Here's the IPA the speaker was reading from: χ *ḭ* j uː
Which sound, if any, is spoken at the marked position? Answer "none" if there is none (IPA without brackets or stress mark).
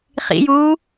ḭ